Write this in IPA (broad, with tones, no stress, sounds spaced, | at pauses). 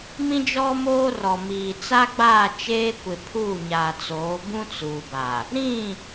m ĩ˦ d͡ʒ ɔ˦ m oː˦ r ɔ˨ m iː˨ t͡s a˦ ɡ͡b aː˦˨ t͡ʃ eː˦ kʷ ɪ˨ pʰ uː˦˨ ɲ aː˨ t͡s oː˨˦ b ũ˦ t͡s uː˨ b a˨ | ɾ ĩ˦˨